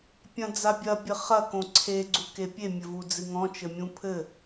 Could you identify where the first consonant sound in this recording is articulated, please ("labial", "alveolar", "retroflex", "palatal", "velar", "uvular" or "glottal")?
labial